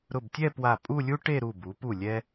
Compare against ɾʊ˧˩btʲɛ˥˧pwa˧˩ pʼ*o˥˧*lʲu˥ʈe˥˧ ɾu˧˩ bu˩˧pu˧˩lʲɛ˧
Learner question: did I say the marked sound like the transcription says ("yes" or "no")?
no